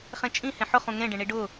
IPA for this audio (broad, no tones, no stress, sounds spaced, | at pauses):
χ ẽ t͡ʃʼ ĩ h ẽ ħ ʊ χ ũ ŋ ẽ ɖ ẽ ɳ i ɖ ʊ